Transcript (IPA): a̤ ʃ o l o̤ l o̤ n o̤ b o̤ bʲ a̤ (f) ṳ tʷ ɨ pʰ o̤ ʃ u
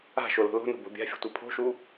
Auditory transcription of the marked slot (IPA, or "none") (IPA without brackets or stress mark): fʲ